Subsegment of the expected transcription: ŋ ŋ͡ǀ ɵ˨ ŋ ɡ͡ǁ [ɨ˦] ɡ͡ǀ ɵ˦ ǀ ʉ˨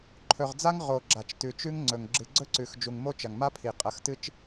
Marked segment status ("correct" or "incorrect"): incorrect